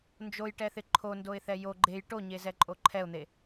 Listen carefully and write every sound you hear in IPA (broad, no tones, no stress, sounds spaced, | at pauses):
n d͡ʒ o j ʈ ɛ θ ɪ ǃʰ o n d o ɪ̯ θ ɛ j o ɡ͡ǃ e j ʈ o ɲ e z ɛ ǃʼ o ǃʰ ɛ ʊ̯ n̪ e